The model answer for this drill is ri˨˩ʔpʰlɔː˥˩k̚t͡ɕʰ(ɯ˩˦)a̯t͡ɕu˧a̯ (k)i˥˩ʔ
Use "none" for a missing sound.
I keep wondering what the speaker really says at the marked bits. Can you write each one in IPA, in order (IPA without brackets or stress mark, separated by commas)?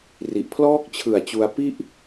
ɯ˨˩, p